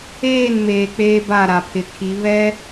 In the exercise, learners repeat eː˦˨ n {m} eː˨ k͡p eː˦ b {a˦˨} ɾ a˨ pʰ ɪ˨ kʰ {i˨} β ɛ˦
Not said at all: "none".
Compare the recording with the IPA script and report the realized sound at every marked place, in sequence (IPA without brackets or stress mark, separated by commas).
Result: m, a˦˨, i˨˦